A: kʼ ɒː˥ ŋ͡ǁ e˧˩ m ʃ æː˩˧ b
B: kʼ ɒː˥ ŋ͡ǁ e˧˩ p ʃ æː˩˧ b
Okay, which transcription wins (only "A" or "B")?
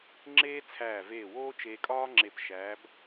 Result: B